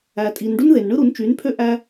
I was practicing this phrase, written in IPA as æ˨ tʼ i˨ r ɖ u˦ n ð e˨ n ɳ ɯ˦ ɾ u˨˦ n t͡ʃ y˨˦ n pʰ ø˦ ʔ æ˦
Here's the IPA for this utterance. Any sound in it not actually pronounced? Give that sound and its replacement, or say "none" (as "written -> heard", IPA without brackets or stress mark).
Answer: r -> n